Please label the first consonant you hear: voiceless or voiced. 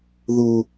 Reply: voiced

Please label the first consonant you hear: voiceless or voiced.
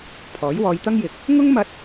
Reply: voiceless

